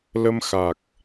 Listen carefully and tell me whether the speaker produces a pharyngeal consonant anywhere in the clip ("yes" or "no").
no